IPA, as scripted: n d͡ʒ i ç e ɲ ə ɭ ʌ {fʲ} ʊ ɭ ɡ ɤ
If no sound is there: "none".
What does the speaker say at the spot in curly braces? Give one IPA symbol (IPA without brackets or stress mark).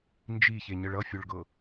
fʲ